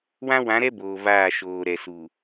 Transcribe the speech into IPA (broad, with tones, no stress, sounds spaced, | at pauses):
w ã˦ w ã˨˦ ɾ ɛ˦ b oː˨ v aː˦˨ ʃ oː˨ ɾ ɛ˨ s u˨